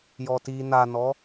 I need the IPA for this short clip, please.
j ɔ t i n a n ɔ

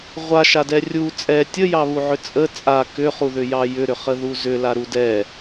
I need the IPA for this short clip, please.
ʁʷ a ʃ a d ɛ rʲ u t͡sʼ ɛ tʲ ə j ɑ β u ʕ ʏ t͡sʼ ə t͡sʼ a k ʏ χ u ð ʏ j ɑ j ʏ ɾ ʏ χ ə ð u z ʏ l a ɾ u d ɛ

